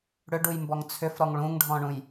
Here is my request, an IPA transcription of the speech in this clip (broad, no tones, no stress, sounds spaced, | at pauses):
ɽ ʏ ɖ u j m b ɔ ŋ t͡sʰ ʏ f ɾ ɔ ŋ ɭ ũ ŋ ɖʱ ɔ̃ ɳ ũ j